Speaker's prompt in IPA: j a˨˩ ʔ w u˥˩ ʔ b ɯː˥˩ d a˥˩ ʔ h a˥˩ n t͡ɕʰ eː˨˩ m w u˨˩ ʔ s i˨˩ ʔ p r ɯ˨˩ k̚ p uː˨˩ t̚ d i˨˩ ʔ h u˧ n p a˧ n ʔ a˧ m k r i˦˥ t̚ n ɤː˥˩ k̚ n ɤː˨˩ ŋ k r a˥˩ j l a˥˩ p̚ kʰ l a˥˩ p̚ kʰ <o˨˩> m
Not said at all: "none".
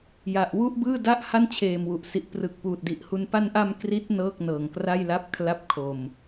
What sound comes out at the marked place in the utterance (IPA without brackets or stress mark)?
o˧